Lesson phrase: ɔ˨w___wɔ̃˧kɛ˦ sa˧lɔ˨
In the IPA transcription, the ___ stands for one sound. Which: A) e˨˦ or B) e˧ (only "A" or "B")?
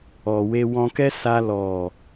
B